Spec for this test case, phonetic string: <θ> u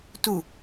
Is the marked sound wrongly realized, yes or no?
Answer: yes